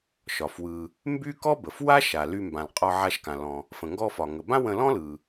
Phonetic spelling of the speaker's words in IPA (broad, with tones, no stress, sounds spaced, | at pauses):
ʃ ɒ˩ f w ɯ˩ | m b y˥ k ɔ˥ b ə˩ f w a˥ ʃ a˩ l y˧ m b ã˩ l qʼ ɒ˧ ʕ a˧ ʃ k ã˩ l ɔ̃˩ | f ə̃˩ ŋ ɡ ɔ˧ f ɒ˩ ŋ ə˩ b ã˥ w ə̃˧ l ɔ̃˥ l ɯ˩